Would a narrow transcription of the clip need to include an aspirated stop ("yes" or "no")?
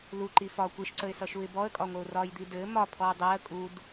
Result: yes